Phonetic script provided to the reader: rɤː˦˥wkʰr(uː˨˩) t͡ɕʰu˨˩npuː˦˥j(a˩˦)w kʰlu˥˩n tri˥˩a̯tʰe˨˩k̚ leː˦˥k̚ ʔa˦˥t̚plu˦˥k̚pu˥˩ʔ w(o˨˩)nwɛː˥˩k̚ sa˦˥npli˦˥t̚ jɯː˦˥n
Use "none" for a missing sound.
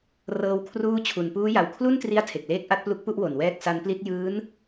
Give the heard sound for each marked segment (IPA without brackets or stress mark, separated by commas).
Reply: uː˥˩, a˨˩, o˨˩